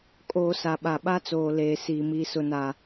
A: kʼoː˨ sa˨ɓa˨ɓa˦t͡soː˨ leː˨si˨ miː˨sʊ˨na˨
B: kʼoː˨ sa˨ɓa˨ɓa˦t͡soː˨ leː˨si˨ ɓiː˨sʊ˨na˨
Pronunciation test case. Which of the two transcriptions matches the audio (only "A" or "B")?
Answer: A